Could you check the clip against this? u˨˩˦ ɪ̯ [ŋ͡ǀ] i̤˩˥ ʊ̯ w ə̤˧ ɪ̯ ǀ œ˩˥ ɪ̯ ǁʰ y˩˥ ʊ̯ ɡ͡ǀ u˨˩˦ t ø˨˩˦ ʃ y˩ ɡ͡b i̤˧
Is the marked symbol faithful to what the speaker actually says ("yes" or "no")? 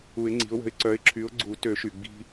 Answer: yes